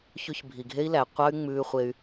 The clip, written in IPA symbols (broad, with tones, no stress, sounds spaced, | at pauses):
ç ʉ˧ ç bʱ i˨ ɡʱ e˦ i̯ l æ˨ qʷ ɑ˦ y̯ ŋ͡m ʉː˧ χʷ e˧ y̯